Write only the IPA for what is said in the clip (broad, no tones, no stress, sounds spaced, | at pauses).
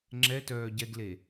ŋ͡ǁ ɛ t œː ɟ ɛ ɡ l e